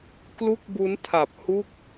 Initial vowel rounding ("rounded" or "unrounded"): rounded